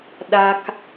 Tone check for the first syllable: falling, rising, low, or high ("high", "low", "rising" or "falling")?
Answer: low